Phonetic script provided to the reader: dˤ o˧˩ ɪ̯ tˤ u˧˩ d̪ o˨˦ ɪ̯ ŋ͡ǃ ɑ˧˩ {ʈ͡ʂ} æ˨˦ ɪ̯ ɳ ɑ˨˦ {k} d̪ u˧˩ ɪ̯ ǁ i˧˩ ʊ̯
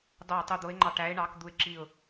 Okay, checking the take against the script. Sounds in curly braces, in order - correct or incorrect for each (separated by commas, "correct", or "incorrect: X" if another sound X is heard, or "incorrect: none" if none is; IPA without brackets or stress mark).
incorrect: ʈ, correct